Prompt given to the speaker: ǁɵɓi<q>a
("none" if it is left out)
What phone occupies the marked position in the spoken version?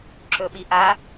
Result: ʔ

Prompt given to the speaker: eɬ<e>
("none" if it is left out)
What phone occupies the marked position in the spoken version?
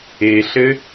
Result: ɘ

